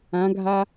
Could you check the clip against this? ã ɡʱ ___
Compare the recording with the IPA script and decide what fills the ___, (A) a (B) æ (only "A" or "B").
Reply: A